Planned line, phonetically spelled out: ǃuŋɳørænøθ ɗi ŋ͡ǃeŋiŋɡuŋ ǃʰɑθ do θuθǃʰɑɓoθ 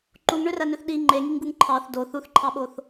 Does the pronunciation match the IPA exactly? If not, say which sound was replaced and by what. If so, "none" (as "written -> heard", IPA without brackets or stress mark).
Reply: none